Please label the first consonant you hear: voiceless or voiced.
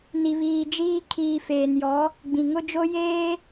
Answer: voiced